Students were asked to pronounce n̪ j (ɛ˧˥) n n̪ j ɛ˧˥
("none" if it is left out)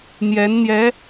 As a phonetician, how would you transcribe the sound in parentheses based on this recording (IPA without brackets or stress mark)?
ɛ˧˥